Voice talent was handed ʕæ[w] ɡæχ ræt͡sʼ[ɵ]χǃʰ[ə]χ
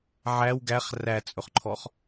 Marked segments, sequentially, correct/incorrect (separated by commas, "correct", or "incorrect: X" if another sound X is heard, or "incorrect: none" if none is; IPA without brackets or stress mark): correct, correct, incorrect: ɔ